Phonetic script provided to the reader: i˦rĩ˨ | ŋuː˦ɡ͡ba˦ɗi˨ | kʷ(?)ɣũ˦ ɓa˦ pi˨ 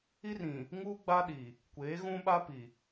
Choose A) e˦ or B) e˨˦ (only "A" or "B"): B